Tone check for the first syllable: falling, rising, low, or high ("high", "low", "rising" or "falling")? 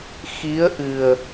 rising